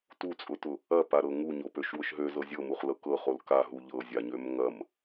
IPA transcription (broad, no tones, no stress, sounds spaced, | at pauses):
t u t͡sʼ ʊ t ʊ | ɐ p a ɾ ɤ ŋ u ɲ o p ø ʃ w ʊ ʃ ɦ ø z ɤ zʲ ɤ m u χ l ɤ k ɤ χ o l k a ɦ u ʎ ɤ zʲ a ɲ ø m ŋ ɐ m